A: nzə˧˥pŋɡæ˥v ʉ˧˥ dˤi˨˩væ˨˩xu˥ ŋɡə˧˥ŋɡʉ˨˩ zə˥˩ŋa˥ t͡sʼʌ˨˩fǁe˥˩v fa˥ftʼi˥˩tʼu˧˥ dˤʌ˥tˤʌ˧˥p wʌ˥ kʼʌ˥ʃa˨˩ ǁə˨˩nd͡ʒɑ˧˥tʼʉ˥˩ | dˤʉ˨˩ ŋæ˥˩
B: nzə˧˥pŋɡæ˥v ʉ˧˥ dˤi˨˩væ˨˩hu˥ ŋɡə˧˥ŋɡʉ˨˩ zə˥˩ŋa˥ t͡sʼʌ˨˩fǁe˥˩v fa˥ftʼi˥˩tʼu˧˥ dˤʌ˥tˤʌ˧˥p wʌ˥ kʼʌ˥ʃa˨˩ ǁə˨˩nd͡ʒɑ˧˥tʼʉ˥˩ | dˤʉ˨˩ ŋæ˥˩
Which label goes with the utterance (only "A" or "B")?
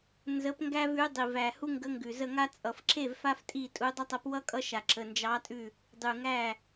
B